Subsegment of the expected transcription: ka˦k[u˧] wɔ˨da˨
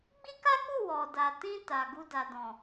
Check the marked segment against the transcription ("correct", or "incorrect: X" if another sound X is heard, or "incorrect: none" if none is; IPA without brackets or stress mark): incorrect: u˦˨